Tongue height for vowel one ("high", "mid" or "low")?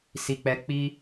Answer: high